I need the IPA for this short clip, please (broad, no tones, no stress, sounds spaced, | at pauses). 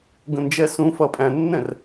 ɡ ə̃ n d͡ʒ ɛ s ũ f ʌ pʼ æ̃ nː ɛ̃ r